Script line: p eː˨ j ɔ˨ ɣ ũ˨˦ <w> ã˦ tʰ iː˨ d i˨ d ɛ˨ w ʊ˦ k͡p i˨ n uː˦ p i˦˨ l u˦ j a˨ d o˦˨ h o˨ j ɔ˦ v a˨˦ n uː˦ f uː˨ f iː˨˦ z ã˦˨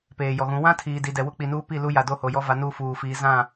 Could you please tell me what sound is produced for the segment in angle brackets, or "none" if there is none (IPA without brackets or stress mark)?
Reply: w